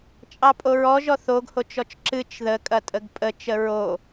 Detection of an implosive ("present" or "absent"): absent